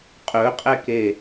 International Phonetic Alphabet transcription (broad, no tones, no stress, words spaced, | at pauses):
qʼɵqʼɛke